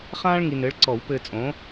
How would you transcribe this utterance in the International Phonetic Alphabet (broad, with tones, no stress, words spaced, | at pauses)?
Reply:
χãː˥ɭ ŋi˧nɘː˨˥ɭ ǀɔ˨˩˦wpɘː˧t͡sʼõ˨˥